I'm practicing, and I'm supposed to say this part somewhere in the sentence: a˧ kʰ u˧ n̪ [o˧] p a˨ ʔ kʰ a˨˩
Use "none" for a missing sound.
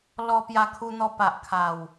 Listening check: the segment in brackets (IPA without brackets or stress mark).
ɔ˧